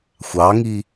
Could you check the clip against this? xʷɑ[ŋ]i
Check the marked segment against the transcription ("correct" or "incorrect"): correct